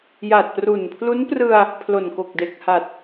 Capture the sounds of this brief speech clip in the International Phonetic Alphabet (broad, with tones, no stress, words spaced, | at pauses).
ja˨˩t̚pru˨˩npʰlu˦˥n prɯ˧a̯ | pʰlo˨˩nko˨˩k̚de˨˩k̚ha˨˩t̚